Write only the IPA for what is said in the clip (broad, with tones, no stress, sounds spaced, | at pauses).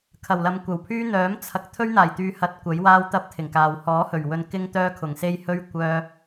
kʰ ɐ˨˩ w l ɐ˨˧ m kʷ ɐ˨˩ w pʰ yː˥ n̪ œː˨˥ m t͡sʰ ɐ˨˥ k̚ t̪ʰ ɵ˥ ɥ n̪ aː˨˩ j t̪ yː˨˧ h ɐ˨˥ t̚ kʷ ɐ˨˥ j w aː˥ w t̪ ɐ˥ p̚ t̪ʰ ɪ˨˩ ŋ k aː˨ w h ɔː˨˥ h ɵ˨˩ ɥ w ɵ˧ n k ɪ˥ ŋ t̪ œː˥ kʰ ʊ˨˩ ŋ s e˥ j h ɵ˥ ɥ kʷ œː˥